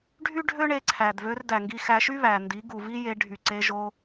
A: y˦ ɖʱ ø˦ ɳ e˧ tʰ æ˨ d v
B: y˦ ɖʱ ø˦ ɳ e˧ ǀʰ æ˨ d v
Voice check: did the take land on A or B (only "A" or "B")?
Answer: B